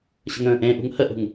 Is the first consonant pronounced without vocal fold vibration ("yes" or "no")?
yes